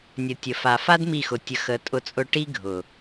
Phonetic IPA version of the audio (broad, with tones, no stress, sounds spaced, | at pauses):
nʲ ə˨ tʲ ə˨ f a˨ f a˦ d m i˦˨ x ʊ˧ tʲ ə˧ x ə˨˦ tʼ ʊ˧ t͡sʼ ʊ˧ ʈ i˦ ɡʱ ʊ˨